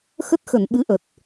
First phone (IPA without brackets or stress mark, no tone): x